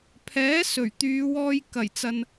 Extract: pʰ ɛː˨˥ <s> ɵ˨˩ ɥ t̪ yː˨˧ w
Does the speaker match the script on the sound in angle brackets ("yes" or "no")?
yes